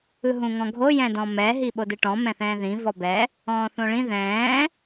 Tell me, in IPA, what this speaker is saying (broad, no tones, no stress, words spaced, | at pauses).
ɯɦũŋɔ̃ɡʱo jɛ̃dɔ̃mɛ ɦiɓodɯʈɔ̃ mɛ̃θɛ̃ːðĩ vɔbɛ | ɔ̃ːθõɭĩ ðɛ̃ː